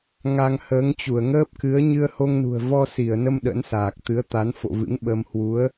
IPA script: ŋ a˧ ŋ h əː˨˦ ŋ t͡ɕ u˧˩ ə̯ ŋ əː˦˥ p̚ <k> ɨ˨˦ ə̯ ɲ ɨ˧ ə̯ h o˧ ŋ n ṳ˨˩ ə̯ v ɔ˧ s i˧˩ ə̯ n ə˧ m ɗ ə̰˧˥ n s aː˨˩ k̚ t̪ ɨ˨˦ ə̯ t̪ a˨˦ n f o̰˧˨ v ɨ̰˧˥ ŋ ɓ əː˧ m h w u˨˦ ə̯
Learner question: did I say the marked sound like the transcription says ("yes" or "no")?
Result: yes